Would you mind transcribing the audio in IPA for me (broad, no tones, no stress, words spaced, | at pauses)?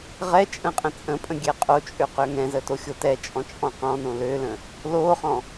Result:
ʁɛ t͡ʃʼə̃qʼə̃t͡sʼə̃pʼə̃ ɡʲɛqʼot͡ʃʼø qøŋɛ̃zə toxʲotɛt͡ʃʼɔ̃ t͡ʃʼɔ̃qɔ̃nõ lølə̃ | loχɔ̃